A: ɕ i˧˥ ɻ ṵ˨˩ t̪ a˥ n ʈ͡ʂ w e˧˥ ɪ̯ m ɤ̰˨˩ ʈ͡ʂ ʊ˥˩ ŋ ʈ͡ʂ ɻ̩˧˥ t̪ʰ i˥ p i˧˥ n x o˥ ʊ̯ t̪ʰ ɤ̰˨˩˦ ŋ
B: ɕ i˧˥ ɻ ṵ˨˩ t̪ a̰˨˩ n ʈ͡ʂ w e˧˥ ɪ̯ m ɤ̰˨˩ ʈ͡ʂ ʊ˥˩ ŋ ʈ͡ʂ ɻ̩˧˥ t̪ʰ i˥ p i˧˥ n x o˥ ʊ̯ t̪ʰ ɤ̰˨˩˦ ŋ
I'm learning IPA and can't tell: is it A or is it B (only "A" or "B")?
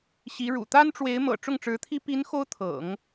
A